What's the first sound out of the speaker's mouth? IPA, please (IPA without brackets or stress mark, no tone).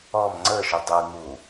ɔ